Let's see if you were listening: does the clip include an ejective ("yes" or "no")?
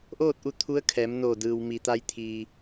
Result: no